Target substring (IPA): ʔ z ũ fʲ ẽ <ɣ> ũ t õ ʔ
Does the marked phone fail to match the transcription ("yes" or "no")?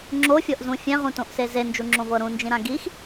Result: yes